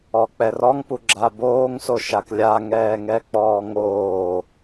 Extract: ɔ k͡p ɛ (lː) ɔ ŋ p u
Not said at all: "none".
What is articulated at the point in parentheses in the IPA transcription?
r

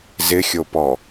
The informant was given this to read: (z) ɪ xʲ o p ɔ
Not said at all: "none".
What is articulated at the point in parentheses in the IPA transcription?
z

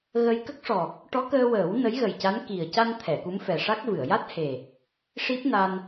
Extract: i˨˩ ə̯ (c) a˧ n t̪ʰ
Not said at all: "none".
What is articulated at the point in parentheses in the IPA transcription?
c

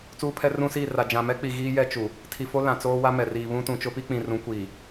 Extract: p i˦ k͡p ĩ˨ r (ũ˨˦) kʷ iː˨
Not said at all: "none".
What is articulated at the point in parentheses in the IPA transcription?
ũ˨˦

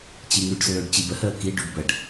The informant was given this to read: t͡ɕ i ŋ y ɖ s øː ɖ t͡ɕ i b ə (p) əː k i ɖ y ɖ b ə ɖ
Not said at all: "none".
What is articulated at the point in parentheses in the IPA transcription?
h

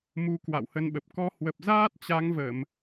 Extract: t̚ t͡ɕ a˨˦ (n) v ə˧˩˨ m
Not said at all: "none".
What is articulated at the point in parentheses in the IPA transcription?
ŋ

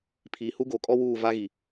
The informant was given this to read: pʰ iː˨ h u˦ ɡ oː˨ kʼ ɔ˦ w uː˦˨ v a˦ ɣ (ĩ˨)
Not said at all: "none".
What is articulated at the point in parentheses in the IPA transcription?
i˨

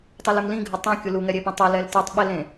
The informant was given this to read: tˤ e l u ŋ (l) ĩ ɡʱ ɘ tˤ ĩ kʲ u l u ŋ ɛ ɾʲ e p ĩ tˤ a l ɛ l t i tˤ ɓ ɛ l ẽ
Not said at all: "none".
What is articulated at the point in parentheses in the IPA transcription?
l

